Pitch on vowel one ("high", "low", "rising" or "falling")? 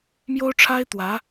high